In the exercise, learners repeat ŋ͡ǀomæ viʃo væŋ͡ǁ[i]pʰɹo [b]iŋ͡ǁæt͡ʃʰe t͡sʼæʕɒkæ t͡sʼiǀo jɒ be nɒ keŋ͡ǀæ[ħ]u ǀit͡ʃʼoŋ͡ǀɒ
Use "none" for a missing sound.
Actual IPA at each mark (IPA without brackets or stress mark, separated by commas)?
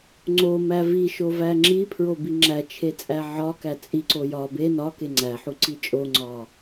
i, b, ħ